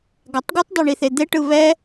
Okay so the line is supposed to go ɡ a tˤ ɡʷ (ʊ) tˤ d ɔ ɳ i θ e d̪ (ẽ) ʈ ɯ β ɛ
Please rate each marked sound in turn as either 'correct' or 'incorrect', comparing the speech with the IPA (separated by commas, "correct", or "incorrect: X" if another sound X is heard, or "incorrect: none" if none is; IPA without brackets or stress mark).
incorrect: ɯ, incorrect: e